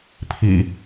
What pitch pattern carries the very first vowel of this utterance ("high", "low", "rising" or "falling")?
low